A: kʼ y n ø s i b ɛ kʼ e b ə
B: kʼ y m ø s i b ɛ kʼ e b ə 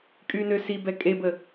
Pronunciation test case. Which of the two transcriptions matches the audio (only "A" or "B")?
A